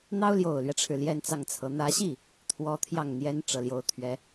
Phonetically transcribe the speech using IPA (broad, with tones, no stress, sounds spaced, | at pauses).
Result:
n̪ ɑ˥ ʊ̯ l j o˨˩ ʊ̯ l ɥ ɛ˦ ʈ͡ʂʰ ɻ̩˩ l j ɛ˥˧ n t͡s ɑ˥˩ ŋ t͡sʰ ɤ˧˥ n̪ ä˧˥ ɕ i˥˩ | t̪ʰ w ɔ˧˥ t̪ʰ j ɑ˥˩ ŋ n̪ j ɛ˥ n ʈ͡ʂ ɤ˨˩ l j o˧˥ ʊ̯ t̪ʰ ɥ ɛ˧˥